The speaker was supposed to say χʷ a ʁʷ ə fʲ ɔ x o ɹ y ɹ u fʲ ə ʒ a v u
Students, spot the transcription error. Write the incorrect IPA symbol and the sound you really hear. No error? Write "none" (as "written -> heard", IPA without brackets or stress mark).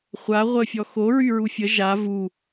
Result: none